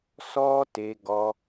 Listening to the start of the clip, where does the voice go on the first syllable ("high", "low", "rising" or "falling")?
high